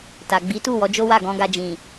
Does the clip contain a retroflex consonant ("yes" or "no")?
no